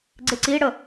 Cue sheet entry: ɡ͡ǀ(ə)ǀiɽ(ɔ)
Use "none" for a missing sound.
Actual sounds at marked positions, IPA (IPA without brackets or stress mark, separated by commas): ɪ, ə